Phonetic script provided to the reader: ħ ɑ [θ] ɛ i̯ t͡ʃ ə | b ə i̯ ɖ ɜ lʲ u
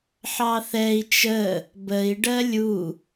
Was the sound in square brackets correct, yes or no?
yes